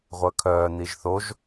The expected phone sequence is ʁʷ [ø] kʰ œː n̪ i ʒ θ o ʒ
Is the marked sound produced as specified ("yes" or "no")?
no